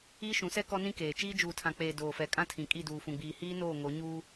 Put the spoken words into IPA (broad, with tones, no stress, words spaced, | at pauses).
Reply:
iː˦ʃũ˨˦sɛ˦ kɔ˦nĩ˦keː˨ t͡ʃiː˦d͡ʒuː˨tʰã˨k͡peː˨ doː˨fɛ˨kʼã˦tʰĩ˨ kʼi˦˨duː˨fũ˨ɡ͡biː˨ hiː˦noː˦˨ ŋo˨˦ɲuː˦